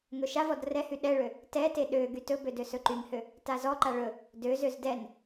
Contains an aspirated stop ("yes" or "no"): no